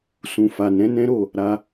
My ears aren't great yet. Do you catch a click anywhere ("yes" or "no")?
no